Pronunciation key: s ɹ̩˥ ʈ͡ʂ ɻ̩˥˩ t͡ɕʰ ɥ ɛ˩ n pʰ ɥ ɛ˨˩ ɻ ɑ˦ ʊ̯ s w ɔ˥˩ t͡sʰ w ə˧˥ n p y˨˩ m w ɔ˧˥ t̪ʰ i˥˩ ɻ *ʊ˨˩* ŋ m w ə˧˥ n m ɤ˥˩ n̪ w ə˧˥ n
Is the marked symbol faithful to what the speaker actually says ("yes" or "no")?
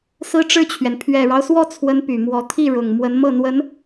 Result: yes